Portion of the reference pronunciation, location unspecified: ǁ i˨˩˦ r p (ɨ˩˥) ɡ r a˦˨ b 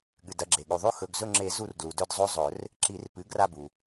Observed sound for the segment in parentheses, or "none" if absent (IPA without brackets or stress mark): ɨ˩˥